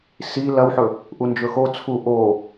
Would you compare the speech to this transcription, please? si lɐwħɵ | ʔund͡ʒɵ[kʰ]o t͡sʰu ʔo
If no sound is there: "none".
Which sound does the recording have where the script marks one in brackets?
x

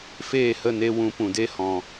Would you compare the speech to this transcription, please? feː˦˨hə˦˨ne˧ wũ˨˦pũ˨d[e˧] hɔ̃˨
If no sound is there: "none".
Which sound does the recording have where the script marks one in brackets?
e˦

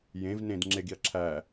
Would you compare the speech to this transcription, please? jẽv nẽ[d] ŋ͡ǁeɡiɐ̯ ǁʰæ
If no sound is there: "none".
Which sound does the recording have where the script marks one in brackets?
d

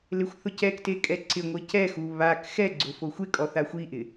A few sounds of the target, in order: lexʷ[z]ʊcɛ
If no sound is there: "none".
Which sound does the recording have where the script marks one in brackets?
θ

